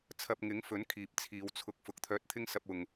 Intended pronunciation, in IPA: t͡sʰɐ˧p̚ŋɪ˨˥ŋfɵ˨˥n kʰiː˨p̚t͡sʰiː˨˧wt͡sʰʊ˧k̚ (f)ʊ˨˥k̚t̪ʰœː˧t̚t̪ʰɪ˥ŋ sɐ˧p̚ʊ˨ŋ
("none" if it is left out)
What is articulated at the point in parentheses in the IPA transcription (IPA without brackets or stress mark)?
f